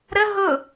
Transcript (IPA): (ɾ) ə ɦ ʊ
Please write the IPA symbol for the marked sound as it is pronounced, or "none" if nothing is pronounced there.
ɾ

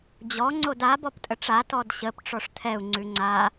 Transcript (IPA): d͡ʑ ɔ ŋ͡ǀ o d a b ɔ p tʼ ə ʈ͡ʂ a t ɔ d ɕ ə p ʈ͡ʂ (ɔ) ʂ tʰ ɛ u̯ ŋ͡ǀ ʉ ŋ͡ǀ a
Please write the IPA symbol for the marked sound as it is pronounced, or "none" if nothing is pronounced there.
ɔ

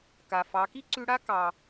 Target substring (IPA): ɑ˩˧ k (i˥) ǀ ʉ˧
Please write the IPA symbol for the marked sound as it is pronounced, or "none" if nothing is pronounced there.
i˥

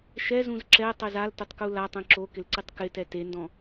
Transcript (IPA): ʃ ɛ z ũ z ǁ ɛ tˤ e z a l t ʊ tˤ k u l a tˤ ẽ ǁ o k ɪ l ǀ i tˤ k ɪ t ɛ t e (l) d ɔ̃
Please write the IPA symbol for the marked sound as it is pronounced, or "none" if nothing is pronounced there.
n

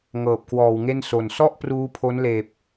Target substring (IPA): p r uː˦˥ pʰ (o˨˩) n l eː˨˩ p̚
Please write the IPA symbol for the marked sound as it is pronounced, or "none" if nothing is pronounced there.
o˦˥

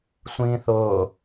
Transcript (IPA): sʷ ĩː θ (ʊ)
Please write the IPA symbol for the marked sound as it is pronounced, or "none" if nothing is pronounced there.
ʊː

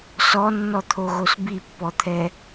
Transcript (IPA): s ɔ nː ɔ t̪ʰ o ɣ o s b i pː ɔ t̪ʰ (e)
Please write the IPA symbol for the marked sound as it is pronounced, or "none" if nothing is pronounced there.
ɛ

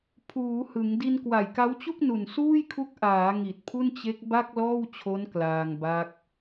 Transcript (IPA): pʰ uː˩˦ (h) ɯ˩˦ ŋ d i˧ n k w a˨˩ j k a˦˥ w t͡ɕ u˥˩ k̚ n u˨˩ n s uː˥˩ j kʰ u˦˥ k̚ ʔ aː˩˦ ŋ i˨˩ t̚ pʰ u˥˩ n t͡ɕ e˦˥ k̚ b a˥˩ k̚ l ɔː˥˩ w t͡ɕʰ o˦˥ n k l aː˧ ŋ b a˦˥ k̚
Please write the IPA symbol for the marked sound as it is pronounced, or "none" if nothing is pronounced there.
h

